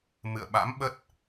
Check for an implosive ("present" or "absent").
present